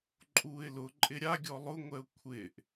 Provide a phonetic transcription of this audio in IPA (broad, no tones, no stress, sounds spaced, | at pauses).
ǃʼ uː ɪ̯ l ʊ ǃʼ ɪ ɾʲ a ɡʲ ɔ lˠ ʊ ŋʷ ɛ ʊ̯ kʷʰ ɪː ʔ